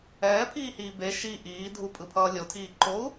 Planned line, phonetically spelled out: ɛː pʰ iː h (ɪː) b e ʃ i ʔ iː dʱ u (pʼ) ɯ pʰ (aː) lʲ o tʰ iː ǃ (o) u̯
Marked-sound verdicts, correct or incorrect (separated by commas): incorrect, correct, incorrect, correct